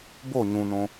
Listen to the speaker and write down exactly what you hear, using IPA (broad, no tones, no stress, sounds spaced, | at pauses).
b o ɲ ũ n õ